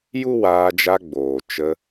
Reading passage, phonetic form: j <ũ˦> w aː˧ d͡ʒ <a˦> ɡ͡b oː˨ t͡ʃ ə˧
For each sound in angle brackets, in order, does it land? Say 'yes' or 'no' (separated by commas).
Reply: no, no